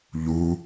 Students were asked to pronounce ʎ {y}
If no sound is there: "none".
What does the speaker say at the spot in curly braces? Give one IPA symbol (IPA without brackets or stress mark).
u